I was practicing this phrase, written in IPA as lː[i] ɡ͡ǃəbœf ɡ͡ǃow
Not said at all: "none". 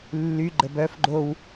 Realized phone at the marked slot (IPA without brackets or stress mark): y